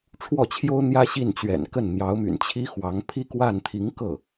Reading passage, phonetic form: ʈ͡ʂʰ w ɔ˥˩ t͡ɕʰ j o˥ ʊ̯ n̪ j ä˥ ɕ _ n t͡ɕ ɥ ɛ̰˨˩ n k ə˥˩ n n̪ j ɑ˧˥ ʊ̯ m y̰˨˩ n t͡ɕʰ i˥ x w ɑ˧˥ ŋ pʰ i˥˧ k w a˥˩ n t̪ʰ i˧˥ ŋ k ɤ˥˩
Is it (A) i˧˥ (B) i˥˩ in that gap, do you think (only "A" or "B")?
B